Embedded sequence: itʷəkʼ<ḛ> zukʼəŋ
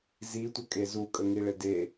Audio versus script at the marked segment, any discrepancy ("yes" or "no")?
yes